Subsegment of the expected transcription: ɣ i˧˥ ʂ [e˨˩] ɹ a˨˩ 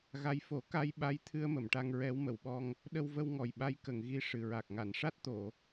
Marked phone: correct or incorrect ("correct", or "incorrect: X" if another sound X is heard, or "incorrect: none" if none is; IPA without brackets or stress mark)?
incorrect: ɨ˨˩